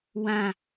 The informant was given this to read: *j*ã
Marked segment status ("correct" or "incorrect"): incorrect